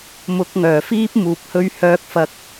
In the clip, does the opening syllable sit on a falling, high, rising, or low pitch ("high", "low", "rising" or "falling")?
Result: rising